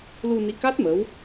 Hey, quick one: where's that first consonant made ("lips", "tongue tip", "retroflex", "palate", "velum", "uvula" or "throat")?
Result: tongue tip